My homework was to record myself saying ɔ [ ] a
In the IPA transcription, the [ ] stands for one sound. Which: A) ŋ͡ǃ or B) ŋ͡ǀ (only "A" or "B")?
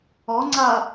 B